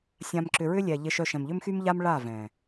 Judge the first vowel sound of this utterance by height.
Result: low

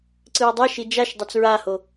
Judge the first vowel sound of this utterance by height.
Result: high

